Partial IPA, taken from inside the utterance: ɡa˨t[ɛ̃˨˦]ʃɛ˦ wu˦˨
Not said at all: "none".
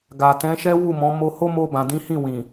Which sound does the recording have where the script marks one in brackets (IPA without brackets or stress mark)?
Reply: ɛ̃˨˦